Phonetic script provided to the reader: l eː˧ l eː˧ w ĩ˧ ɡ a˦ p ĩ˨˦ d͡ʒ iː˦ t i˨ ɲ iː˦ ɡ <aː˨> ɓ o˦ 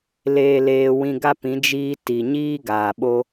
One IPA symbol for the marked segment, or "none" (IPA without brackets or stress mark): aː˨